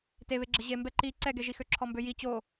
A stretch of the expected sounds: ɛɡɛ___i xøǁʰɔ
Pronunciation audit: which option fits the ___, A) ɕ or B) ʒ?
B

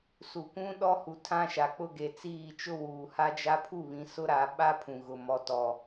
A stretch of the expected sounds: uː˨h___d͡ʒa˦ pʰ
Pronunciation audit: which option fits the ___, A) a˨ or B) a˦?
B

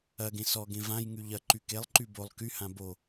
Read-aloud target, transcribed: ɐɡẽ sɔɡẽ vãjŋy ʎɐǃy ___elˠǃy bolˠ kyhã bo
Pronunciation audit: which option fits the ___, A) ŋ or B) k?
B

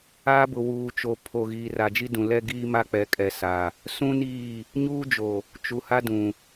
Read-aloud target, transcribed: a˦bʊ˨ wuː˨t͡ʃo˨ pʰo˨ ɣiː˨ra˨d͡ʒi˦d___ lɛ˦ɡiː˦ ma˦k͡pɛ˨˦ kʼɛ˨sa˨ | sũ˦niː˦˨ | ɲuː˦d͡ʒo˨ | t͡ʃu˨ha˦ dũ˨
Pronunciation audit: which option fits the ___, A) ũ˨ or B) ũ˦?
A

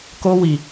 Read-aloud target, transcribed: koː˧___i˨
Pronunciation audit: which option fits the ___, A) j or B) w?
B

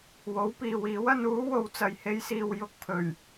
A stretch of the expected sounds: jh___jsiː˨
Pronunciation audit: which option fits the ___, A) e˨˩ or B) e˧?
B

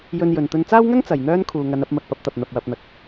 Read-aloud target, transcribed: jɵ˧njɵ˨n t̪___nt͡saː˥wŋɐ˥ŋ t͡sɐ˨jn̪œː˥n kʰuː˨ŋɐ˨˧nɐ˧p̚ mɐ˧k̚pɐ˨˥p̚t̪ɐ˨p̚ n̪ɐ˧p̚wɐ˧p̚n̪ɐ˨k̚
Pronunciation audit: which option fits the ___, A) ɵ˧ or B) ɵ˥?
A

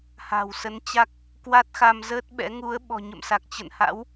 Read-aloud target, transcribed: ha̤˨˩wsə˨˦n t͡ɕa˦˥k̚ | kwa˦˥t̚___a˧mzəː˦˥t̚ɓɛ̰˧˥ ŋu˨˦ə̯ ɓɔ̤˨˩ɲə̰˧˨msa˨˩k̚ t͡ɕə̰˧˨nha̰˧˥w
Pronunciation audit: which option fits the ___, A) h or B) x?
B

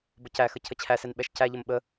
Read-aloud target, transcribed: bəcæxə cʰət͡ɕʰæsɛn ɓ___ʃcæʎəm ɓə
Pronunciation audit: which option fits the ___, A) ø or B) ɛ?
B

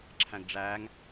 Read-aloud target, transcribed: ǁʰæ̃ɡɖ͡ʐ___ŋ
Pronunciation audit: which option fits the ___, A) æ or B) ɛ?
A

